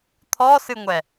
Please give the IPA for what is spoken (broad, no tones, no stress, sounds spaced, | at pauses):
t̪ʰ ɔ s ɨ ŋʷ ɛ